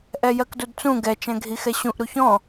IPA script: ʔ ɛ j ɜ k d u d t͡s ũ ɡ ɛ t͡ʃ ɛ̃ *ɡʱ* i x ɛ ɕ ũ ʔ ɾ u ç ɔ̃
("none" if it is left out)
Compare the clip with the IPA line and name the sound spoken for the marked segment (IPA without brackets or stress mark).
ɡʱ